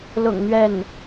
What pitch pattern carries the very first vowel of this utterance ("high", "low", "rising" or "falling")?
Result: low